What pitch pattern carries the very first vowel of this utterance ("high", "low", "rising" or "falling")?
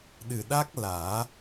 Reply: low